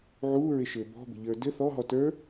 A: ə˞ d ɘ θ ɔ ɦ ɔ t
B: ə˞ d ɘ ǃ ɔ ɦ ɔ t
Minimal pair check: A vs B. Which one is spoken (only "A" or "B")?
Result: A